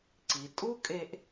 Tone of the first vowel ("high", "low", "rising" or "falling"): low